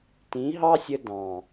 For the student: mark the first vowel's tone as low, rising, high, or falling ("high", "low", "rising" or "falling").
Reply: rising